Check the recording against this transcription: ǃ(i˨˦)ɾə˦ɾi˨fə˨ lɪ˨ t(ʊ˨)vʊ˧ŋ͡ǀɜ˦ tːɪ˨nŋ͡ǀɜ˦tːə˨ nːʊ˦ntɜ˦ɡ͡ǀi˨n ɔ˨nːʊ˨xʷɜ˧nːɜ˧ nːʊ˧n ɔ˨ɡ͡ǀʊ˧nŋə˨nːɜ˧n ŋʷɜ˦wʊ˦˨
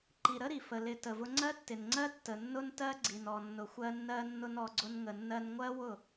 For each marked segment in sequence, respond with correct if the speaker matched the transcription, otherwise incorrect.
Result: incorrect: i˨, incorrect: ə˨

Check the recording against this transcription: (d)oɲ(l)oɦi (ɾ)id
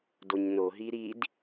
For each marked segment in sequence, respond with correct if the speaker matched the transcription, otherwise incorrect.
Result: correct, incorrect: n, correct

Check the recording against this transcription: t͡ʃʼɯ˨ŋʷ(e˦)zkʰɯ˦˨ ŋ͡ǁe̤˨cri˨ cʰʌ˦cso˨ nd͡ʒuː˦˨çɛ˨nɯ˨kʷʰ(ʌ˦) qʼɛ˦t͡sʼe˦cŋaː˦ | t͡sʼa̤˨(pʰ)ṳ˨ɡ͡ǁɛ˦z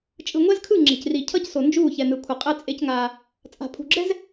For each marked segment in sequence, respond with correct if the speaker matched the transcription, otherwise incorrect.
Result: incorrect: ɛ˦, incorrect: ʌ˨, correct

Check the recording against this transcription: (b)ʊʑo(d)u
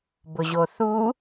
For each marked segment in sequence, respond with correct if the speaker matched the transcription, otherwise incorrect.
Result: correct, incorrect: θ

